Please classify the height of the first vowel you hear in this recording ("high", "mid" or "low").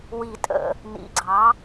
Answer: high